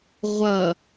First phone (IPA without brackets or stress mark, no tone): ʁʷ